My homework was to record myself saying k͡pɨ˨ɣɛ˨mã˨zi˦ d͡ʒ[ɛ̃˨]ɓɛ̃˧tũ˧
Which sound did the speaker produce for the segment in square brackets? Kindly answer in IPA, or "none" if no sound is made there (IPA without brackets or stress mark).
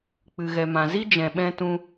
ɛ̃˨